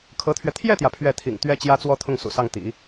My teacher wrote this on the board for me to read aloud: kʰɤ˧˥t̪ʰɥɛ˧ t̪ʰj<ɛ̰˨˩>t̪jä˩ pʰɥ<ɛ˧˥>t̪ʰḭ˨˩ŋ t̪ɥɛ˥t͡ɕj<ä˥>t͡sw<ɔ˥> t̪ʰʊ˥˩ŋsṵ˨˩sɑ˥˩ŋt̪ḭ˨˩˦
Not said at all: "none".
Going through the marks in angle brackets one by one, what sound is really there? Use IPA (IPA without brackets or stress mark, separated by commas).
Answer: ɛ˥˩, ɛ˥˩, ä˥, ɔ˥˧